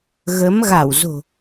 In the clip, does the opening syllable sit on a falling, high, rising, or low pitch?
rising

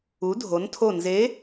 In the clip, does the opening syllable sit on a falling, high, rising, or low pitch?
rising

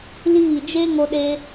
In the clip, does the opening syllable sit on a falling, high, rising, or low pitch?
falling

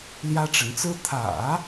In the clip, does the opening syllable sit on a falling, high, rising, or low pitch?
high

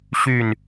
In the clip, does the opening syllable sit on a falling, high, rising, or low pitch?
falling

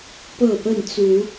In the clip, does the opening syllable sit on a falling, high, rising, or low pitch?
falling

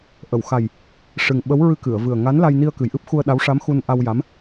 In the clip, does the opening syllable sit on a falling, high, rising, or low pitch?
low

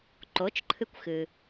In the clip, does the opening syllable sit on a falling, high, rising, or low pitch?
rising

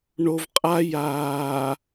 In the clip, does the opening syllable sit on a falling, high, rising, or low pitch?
low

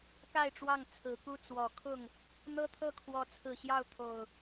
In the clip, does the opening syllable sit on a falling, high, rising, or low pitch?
falling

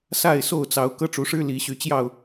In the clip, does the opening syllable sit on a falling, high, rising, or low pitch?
falling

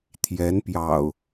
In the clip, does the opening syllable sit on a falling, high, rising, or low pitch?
rising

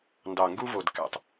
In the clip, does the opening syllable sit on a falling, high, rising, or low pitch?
low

